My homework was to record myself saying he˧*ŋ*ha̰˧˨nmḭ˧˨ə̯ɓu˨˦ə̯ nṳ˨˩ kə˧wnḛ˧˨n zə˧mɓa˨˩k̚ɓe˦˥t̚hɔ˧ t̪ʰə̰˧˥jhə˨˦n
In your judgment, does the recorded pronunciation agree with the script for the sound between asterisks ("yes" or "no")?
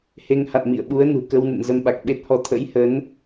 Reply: yes